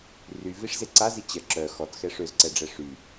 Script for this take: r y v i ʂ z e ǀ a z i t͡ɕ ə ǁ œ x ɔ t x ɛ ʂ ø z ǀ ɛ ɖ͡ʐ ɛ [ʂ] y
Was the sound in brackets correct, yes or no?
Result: yes